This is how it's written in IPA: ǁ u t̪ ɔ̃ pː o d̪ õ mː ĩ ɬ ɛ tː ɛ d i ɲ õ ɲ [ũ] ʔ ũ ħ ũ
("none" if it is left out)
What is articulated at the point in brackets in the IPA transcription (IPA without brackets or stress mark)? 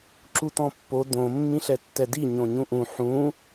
ũ